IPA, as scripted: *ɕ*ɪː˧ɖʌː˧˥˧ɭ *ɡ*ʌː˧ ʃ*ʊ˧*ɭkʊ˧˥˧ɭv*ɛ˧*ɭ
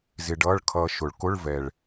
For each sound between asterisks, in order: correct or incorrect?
incorrect: z, incorrect: kʰ, incorrect: ʊ˨˩˦, incorrect: ɛ˨˩

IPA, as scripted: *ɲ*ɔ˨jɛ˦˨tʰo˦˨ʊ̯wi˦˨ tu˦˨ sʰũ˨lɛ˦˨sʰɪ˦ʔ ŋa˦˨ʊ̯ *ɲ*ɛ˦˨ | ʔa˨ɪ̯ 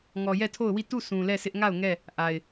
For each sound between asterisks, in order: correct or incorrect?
incorrect: ŋ, incorrect: ŋ

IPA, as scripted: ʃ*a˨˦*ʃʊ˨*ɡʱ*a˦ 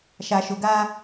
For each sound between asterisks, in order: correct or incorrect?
incorrect: a˨, incorrect: ɡ

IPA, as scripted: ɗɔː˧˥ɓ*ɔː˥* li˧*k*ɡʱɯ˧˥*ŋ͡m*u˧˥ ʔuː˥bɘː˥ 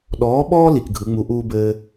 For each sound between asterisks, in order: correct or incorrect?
correct, correct, correct

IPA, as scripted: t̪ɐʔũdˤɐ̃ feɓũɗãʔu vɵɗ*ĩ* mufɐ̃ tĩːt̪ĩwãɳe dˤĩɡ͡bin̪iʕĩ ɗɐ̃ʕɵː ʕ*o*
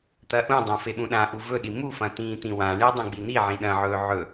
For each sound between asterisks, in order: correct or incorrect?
incorrect: i, incorrect: ɵ

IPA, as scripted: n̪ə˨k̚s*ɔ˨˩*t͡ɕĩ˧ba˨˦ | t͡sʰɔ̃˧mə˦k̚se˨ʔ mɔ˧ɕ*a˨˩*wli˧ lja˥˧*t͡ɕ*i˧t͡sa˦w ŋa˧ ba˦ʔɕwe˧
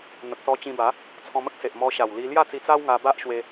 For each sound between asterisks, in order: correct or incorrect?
incorrect: ɔ˧, correct, incorrect: t͡s

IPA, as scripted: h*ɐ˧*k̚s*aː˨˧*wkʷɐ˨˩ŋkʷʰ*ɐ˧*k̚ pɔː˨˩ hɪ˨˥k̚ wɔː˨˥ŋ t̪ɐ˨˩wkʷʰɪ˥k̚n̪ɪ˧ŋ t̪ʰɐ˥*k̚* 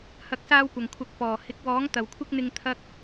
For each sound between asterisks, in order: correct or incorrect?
incorrect: ɐ˨˥, incorrect: aː˧, incorrect: ɐ˨˥, correct

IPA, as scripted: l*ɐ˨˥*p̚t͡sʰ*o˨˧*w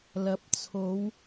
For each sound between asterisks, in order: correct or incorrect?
correct, correct

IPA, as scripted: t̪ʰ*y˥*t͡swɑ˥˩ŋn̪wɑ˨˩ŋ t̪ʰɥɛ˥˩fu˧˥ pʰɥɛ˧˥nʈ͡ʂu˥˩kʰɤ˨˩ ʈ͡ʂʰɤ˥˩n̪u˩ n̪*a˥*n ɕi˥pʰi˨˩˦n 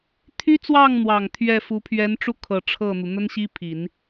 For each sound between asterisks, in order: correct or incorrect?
correct, incorrect: ə˥

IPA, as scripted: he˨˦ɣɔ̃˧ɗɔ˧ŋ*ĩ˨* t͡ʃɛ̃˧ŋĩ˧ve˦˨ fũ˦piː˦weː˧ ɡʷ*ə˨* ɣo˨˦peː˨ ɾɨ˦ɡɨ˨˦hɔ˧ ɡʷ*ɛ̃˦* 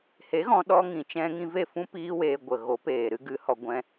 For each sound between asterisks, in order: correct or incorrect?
correct, correct, correct

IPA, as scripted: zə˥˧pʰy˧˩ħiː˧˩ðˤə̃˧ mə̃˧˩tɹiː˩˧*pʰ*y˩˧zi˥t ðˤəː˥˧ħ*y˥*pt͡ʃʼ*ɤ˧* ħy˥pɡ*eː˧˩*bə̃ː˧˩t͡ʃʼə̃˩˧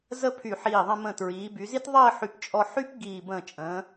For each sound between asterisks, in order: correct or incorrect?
incorrect: b, incorrect: y˧˩, incorrect: ɔ˧, incorrect: iː˧˩

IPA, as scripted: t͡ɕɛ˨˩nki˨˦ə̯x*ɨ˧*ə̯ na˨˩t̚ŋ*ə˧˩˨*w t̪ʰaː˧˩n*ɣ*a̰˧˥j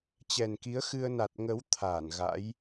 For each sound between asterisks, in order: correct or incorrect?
correct, incorrect: ə˨˦, correct

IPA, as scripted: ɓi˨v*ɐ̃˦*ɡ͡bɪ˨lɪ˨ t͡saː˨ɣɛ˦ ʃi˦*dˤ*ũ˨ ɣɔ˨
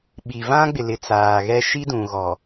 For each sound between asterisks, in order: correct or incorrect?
incorrect: ã˦, incorrect: d

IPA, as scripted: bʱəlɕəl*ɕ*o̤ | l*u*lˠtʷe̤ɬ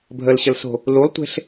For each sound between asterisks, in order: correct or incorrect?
incorrect: s, correct

